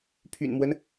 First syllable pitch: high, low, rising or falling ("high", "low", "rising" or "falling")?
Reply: low